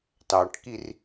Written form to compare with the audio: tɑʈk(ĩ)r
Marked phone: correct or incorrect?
incorrect